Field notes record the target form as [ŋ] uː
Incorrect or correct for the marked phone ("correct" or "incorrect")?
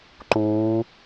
incorrect